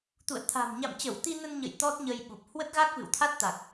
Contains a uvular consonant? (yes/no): no